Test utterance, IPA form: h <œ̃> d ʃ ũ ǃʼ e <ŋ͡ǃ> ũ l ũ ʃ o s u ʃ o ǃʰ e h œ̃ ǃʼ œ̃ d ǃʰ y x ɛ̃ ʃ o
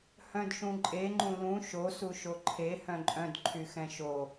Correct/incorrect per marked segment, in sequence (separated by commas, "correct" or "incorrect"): correct, correct